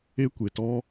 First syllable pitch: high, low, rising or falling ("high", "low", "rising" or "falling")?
high